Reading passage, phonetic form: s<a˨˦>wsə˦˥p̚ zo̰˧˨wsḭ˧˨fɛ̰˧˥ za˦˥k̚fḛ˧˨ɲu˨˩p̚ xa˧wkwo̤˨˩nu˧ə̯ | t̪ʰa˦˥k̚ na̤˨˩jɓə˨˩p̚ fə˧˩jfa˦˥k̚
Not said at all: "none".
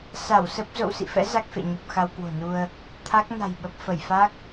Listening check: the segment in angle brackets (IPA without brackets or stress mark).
a˧˩